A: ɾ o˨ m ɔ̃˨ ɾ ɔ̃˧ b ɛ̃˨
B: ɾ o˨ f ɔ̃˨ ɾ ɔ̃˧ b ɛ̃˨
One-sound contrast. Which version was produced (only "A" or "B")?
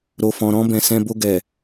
B